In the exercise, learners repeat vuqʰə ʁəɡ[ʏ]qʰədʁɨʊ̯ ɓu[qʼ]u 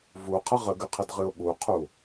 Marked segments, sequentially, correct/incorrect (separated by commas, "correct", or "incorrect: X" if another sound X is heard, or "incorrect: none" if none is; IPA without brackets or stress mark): incorrect: ɨ, incorrect: qʰ